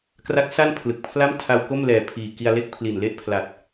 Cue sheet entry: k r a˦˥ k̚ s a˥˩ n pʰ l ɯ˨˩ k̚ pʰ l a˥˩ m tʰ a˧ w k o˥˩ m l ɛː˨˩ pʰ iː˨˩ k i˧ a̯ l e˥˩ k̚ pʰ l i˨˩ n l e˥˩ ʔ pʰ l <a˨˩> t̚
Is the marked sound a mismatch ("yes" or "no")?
no